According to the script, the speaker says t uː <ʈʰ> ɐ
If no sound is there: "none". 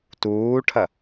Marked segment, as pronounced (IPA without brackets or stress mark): ʈʰ